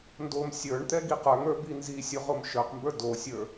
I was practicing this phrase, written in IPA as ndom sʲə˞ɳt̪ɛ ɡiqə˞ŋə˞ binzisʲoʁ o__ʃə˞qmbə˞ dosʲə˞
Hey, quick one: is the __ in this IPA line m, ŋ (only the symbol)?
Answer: m